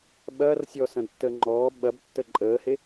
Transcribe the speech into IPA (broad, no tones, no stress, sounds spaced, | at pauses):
ɓ ɐː r sʲ ɔ s ɐ̃ d tː əː ŋ͡ǃ ɔː ɓ ɐ b tː ə ǃʼ əː h e